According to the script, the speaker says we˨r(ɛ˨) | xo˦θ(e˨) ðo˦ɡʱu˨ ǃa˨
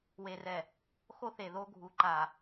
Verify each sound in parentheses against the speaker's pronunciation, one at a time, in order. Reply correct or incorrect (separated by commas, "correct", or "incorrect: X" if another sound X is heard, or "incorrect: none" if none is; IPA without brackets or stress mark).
correct, correct